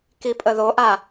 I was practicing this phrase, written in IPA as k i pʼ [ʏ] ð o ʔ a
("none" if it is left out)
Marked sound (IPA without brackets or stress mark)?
ə